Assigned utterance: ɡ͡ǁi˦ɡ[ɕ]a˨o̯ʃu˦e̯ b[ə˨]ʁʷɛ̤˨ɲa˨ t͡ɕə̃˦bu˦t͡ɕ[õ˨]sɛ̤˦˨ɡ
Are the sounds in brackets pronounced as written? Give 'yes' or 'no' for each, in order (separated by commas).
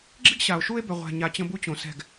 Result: yes, no, yes